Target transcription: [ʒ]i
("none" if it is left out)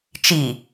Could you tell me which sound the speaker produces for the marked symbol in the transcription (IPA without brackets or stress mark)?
t͡ʃ